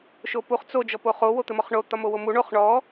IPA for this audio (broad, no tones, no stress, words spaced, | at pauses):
ʃopuχ t͡so d͡ʒɔpoχo wot̪ɘmɔχɳo t̪ɒmowomu ɳoχ ɳɔ